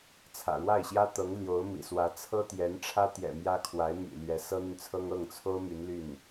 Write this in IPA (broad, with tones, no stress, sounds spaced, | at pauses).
t͡sʰ ä̰˨˩ ɻ w a˥˩ ɪ̯ ɕ j ä˥ t̪ ɤ˧˥ ŋ l j o˧˥ ʊ̯ m ḭ˨˩ s w ä˧˥ t͡sʰ ɤ˥ t̪ j ɛ˧˥ n ʈ͡ʂʰ ä˥ t̪ j ɛ̰˨˩ m j ä˥ kʰ w a˧˥ ɪ̯ m y̰˨˩ l ɥ ɛ˧˥ s ɤ˥ n̪ y˨ n t͡sʰ ɤ˥ ŋ ɤ˥˩ ŋ t͡sʰ o˥ ʊ̯ m y˧˥ n l y˥˩ n